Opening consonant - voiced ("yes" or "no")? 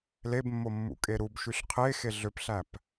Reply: yes